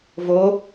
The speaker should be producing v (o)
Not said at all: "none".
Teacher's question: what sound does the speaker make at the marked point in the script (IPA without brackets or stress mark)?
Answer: o